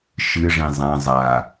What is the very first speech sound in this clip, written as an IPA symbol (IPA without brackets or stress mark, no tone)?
ʃ